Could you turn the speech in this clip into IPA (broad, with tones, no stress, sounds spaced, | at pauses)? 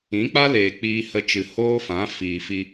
ĩ˨˦ k͡p a˦ l eː˨ k͡p iː˧ h ə˧ t͡ʃ ɨ˨ h oː˦ f ã˨˦ f iː˨ f i˧